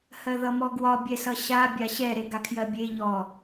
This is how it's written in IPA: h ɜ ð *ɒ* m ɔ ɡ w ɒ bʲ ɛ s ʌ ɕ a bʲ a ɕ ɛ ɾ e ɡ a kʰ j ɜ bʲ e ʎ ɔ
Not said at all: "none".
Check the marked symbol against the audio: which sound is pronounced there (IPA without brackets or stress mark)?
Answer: ʌ